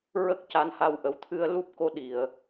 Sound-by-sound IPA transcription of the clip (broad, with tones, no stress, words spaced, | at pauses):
ɹə˦˥k̚ ca˧˥nha˧w ʔə˨˩wt̪ʰɨ˧ə̯ lu˦˥p̚ko˧˥ ɗi˨˩˨ə̯